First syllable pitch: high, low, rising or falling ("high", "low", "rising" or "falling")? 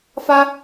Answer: high